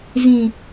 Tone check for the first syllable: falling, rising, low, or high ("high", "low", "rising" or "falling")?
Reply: low